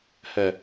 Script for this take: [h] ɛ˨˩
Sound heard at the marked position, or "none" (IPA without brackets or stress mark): h